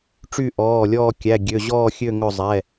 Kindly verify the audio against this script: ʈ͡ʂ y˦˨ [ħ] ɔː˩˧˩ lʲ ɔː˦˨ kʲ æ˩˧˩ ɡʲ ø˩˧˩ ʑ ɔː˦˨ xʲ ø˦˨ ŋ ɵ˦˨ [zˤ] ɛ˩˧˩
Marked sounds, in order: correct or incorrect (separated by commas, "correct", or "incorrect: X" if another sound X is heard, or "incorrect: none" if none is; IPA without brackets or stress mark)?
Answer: incorrect: ʔ, correct